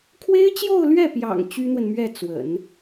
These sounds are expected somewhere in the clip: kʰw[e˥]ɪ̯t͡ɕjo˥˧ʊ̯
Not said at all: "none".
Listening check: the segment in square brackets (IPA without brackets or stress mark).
e˥